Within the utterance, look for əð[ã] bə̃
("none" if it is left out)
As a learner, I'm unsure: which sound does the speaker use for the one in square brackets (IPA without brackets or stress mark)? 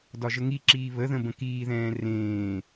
ə̃